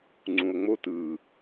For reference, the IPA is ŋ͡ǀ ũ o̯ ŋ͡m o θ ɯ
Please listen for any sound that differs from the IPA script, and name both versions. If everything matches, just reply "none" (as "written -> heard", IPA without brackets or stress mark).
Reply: θ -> t